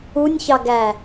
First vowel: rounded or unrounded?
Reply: rounded